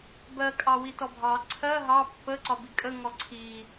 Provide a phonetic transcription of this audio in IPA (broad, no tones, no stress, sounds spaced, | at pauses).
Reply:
b ɜ kʼ ɑ w i t ɔ bʱ ɑ ǀʰ ɜ ɦ ɑ pː ə ǀ ɒ b i kʼ ə ŋ ɔ ǀʰ i